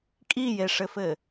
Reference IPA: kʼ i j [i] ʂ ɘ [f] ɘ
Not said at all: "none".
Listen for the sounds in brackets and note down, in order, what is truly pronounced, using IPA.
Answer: e, f

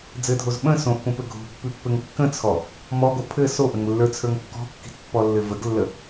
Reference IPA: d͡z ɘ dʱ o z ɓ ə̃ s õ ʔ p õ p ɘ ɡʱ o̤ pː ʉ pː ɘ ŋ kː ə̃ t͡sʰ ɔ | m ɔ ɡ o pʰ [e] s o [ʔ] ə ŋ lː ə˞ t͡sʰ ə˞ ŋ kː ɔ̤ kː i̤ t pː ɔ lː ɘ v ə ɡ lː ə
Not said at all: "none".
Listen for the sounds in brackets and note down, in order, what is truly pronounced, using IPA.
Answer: ɘ, ʔ

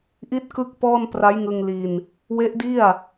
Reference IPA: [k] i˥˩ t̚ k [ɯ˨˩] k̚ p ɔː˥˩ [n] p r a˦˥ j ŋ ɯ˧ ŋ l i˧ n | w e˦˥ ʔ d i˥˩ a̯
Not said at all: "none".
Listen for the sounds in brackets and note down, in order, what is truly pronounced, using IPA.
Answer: ʔ, ɯ˥˩, n

